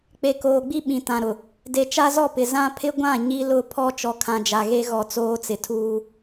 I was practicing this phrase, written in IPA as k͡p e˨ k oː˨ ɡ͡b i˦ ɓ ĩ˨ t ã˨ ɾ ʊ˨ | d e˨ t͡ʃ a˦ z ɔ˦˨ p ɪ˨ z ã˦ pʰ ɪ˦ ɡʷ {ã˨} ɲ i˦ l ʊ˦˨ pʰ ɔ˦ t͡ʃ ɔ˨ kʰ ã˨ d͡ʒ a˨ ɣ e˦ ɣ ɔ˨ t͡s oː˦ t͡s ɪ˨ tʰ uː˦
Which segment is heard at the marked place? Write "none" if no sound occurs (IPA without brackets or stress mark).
ã˦˨